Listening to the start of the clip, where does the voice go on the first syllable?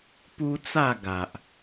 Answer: high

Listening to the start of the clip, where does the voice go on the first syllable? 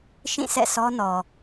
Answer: falling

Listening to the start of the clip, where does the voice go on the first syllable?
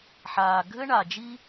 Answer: low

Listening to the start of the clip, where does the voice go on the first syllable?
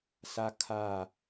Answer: high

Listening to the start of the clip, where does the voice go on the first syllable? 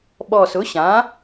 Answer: low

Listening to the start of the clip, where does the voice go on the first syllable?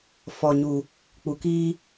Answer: low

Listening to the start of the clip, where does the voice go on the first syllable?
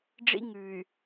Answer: high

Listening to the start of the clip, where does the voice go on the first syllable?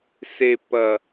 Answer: low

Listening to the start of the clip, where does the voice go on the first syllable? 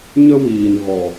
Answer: high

